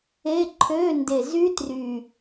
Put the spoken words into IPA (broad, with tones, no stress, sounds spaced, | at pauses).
e˧˥˧ ǃʰ ø˧˥˧ n d e˨˩ z y˦˥ t r y˨˩